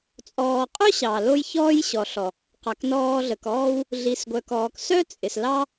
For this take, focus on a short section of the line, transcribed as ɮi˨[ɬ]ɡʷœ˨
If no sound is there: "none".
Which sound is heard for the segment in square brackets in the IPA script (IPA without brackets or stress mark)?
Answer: s